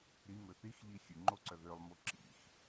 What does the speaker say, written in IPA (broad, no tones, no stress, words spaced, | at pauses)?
ɾimø θixʎi xʲʉŋ͡ǃo ǀœðølˠmo ǁḭx